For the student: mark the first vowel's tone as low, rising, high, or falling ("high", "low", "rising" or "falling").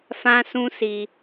high